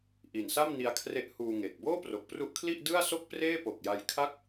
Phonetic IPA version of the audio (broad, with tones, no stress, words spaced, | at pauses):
ʔi˨˩nsa˥˩mni˧a̯kʰre˦˥ʔ huː˧ŋe˨˩k̚ boː˥˩pro˨˩k̚pru˦˥ʔkʰli˥˩ʔ dɯ˥˩a̯so˥˩k̚preː˥˩ po˨˩k̚ja˧jkʰa˥˩k̚